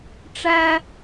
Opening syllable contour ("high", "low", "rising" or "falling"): high